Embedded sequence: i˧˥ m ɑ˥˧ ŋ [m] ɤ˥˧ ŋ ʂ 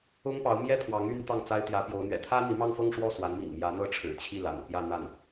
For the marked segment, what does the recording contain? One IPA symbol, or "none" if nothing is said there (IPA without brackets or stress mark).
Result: f